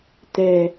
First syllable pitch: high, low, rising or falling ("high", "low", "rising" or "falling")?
low